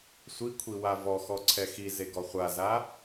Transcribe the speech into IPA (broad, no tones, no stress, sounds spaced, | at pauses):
sʷ i kʷʰ i w a v ɔ x ɔ ǀʰ ɛ x i z e ɡ ɔ χʷ a z a